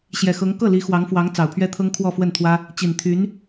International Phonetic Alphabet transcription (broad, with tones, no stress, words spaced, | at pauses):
ɕjɛ˨˩xɤ˧˥ŋ kɤ˥˩ li˧˥xwɑ˧˥ŋfwɑ˧˥ŋ t͡sɑ˨˩ʊ̯pʰɥɛ˥t̪ʰɤ˥ŋ kʰwɔ˥˧fwə˥˩nt̪ʰwä˥ | t͡ɕi˨˩nt̪ʰy˧˥n